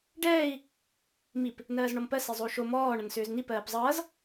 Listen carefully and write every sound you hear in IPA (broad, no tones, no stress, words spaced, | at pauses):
ɖɛːi̯ | mip | nɜːzɳɔmpɜ sezˤou̯ʃo mɔː ɳʌnsʏːzn̪ipɜːp zˤʌːz